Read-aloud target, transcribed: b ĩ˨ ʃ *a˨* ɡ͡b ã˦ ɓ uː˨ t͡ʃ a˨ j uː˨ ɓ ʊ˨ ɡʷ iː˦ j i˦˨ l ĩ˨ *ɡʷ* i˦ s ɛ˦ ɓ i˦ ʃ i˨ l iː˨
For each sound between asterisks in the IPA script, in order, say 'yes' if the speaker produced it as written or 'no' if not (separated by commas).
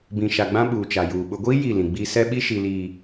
yes, no